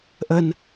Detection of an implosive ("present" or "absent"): absent